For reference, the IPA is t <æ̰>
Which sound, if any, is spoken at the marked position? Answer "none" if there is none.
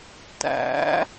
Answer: æ̰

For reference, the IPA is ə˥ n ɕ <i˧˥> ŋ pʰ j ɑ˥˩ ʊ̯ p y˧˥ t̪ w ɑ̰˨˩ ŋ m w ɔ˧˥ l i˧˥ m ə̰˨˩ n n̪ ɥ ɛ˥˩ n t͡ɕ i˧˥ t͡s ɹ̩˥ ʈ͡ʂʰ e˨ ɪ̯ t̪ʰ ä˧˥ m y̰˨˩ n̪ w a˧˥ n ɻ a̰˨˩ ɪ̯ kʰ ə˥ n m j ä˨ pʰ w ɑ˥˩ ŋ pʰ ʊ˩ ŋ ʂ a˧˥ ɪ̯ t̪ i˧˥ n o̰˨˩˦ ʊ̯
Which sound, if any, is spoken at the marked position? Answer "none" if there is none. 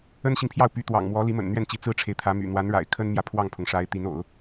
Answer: i˨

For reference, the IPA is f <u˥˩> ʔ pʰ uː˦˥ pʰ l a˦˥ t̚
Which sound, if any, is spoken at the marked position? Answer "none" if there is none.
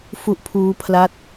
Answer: u˦˥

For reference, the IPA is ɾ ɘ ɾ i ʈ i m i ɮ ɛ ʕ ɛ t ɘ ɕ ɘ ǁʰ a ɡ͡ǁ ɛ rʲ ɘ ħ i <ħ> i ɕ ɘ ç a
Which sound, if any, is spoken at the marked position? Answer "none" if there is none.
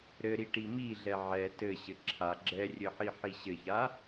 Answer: ħ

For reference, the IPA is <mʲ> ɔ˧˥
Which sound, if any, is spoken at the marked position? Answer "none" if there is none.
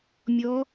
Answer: mʲ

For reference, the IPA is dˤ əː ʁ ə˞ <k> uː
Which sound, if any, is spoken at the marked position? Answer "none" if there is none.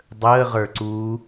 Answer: ǀ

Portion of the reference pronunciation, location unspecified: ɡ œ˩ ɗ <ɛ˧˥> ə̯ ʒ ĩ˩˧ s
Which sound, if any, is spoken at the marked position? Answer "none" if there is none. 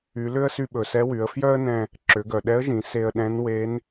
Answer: ɛ˧˥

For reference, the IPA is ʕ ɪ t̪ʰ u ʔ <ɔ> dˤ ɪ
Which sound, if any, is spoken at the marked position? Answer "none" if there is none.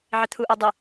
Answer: ɔ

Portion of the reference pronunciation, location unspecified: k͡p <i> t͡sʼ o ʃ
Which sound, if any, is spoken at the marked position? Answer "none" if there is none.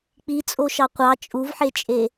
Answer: i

